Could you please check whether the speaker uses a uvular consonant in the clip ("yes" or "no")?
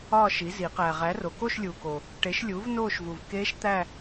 yes